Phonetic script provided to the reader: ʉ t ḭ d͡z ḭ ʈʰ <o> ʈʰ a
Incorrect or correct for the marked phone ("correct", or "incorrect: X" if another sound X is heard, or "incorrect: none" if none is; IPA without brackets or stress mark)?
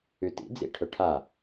incorrect: ɵ